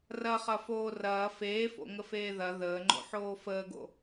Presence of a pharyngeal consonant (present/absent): present